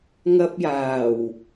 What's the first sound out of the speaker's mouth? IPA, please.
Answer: ŋ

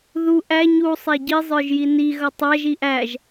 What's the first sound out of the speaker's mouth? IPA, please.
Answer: ð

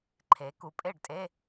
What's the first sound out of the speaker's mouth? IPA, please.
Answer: ǃʰ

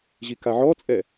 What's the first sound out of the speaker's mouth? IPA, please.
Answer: ʑ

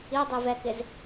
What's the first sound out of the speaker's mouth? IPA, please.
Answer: i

